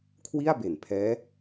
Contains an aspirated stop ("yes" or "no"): yes